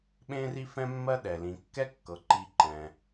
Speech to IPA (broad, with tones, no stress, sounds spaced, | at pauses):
ɓ ẽ˦ r i˦ f ɛ̃˦ mː ɜ˦ ɗ ɛ˩ l ĩ˩ kː ɛ˥ kː ɤ˩ ǃ i˨ ǃ ɛ̃˩